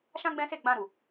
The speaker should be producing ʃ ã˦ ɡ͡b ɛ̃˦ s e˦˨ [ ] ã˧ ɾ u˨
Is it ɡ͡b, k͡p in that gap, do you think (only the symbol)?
ɡ͡b